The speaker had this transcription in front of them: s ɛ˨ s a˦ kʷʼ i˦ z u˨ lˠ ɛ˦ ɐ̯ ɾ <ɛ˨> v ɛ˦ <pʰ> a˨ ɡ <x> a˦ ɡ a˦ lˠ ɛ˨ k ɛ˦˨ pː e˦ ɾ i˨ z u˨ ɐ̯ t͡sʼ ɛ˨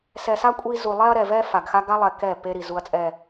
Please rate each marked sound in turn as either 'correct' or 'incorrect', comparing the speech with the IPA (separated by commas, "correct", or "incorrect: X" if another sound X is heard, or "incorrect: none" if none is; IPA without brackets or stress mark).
correct, incorrect: f, correct